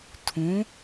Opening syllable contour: rising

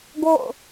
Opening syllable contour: falling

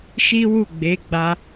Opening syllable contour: high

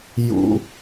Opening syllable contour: high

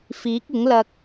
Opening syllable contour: rising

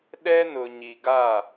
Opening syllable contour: high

